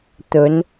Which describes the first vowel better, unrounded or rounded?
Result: rounded